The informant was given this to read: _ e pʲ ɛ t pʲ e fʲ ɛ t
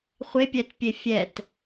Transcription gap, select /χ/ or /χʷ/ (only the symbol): χʷ